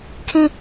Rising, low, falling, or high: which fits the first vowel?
falling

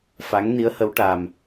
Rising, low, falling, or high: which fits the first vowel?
rising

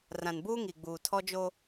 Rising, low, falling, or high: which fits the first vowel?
low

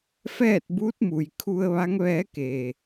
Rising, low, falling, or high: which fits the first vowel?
falling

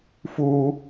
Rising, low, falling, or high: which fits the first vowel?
high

